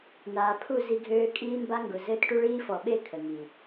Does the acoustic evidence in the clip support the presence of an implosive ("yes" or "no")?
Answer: yes